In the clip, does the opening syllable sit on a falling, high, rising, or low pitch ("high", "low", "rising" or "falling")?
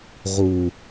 low